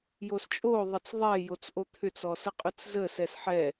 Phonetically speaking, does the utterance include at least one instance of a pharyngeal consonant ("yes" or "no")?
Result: yes